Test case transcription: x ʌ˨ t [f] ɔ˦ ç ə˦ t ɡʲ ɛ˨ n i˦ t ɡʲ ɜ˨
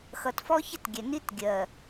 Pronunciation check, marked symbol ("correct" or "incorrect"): correct